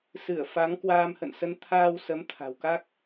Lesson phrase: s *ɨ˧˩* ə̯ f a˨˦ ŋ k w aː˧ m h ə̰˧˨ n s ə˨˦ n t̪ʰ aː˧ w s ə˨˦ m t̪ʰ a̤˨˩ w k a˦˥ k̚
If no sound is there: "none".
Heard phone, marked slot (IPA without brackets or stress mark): ɨ˧˩